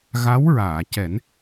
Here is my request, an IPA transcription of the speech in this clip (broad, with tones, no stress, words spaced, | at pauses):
ɣa˧˥wɹaː˨˩˨cɛ˨˩˦n